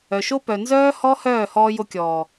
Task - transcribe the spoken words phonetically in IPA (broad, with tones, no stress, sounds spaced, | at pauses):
œ˨ ʃ o˦ p œ˨ n z œː˦ h ɔ˦ h œː˦˨ h ɔː˧ j o˧ kʲ ɔː˨